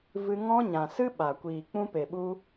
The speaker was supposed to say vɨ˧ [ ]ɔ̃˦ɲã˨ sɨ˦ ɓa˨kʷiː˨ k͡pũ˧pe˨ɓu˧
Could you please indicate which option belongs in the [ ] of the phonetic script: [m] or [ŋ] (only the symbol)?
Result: ŋ